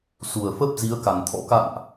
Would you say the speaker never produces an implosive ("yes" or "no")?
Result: yes